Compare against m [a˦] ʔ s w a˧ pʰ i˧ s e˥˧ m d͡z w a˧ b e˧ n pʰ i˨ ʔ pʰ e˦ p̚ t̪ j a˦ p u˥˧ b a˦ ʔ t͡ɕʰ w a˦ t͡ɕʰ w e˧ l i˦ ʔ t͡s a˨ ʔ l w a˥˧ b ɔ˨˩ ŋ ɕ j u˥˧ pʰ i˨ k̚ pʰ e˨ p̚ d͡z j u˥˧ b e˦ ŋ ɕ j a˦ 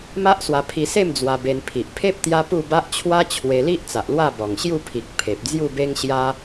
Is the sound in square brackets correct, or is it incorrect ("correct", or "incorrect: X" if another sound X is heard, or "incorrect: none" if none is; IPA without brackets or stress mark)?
correct